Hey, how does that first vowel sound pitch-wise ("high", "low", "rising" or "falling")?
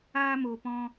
high